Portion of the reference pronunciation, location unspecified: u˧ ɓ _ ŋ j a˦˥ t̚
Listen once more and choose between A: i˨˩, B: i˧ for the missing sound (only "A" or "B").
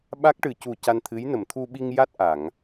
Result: B